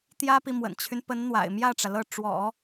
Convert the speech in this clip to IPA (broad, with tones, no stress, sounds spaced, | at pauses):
t̪ j ä˥ p i˨ m w ə̰˨˩ n t͡ɕʰ y˦ n p ə˧˥ n n̪ w a̰˨˩ ɪ̯ m j ä˥˩ ʈ͡ʂ ä˩ l ɤ˥˩ ʈ͡ʂ w ɔ̰˨˩˦